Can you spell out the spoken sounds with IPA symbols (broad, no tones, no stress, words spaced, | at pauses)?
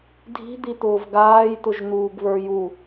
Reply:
dʱi̤d̪it̪ʊːv ɡaːjt̪ʊʒn̪uːɡ βə˞ju